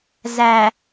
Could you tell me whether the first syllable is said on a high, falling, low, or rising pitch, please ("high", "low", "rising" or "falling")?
low